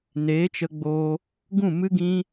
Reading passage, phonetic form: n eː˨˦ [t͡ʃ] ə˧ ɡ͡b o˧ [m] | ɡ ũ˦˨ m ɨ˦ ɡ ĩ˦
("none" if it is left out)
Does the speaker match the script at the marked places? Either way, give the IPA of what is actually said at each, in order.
t͡ʃ, none

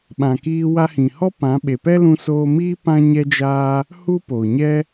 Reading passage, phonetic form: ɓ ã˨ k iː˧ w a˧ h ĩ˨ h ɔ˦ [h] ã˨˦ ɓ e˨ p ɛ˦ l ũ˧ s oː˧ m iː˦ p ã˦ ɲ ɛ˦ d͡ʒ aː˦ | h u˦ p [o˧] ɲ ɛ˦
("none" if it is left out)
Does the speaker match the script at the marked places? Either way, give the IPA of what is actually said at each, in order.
p, o˨

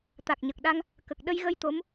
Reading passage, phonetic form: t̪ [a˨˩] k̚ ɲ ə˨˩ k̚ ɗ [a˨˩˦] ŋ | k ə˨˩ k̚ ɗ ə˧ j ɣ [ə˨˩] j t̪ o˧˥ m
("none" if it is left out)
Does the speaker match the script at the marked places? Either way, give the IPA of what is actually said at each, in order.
a˨˩, a˧, ə˧

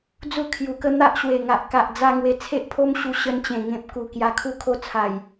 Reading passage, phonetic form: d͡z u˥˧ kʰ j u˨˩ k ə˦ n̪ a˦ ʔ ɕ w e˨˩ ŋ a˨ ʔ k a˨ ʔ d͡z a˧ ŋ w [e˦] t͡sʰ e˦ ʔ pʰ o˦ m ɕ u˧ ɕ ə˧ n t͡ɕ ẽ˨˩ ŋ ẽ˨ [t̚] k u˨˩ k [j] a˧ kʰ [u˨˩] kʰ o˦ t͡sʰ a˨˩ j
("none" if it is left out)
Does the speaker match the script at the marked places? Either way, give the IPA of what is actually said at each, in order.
e˧, p̚, j, u˦

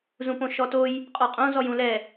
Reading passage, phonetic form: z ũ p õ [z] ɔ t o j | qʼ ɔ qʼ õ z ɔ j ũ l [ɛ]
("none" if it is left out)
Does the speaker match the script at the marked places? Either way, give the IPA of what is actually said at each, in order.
ʃ, ɛ

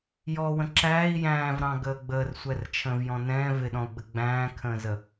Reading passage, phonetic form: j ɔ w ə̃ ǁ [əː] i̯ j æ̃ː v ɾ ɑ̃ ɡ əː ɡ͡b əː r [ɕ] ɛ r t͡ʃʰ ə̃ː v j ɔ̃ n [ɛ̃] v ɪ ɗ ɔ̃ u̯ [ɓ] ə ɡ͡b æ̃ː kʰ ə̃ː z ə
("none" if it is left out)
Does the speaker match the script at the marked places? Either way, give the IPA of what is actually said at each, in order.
æː, sʷ, ɛ̃, ɡ͡b

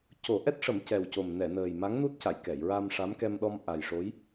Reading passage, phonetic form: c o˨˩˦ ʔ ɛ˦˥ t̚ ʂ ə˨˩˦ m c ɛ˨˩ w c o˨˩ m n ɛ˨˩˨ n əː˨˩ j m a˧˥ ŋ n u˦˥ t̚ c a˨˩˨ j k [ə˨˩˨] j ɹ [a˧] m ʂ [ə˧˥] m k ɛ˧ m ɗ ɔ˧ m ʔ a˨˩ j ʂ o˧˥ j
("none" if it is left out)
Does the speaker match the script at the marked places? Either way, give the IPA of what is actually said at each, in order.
ɛ˨˩˨, a˧, a˧˥

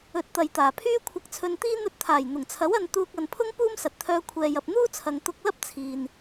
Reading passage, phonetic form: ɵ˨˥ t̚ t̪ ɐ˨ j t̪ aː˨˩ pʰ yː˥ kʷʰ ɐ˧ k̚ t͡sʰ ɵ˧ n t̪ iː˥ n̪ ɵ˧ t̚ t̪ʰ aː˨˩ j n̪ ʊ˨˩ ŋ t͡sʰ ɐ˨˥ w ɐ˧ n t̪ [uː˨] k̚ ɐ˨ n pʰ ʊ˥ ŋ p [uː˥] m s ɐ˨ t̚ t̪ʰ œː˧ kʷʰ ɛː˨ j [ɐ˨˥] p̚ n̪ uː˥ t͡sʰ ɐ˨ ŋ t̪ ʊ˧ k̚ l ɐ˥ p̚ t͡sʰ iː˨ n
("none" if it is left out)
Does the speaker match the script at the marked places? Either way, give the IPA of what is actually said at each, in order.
uː˧, uː˥, ɐ˨

